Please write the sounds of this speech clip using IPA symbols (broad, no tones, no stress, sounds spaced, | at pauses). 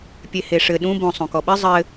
pʲ e h e ʂ ɘ ɗ ũ b õ sˤ õ k ɔ ɓ ɘ zˤ ɘ